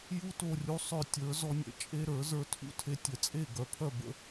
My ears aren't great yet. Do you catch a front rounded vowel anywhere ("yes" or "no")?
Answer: yes